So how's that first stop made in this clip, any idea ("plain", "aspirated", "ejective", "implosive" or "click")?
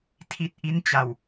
aspirated